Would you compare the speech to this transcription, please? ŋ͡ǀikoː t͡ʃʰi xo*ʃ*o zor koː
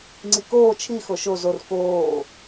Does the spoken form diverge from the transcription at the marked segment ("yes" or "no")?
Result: no